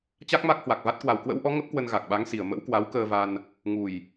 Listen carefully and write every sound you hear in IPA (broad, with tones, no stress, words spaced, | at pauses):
t͡ɕa˦˥k̚ma˦˥k̚hwa˨˩k̚va˦˥t̚ kwa˨˩wkwə̰˧˥wʔɔ˨˦ ŋə˦˥p̚kwə˧n ɣa˨˩k̚ɓa˨˦ŋsi˨˩ə̯ mə̰˧˥wkwa˨˦wkəː˧va˧n | ŋu˨˩j